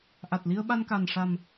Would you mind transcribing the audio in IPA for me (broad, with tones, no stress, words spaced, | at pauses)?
ʔa˨˩t̚li˧ə̯ ɓa˧nka˨˩n ʂa˨˩m